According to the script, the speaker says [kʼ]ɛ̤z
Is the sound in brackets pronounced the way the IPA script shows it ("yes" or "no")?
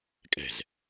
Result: yes